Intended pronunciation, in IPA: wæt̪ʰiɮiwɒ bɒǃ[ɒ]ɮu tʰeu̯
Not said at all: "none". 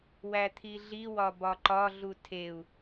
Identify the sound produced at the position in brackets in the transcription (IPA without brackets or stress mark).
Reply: ɒ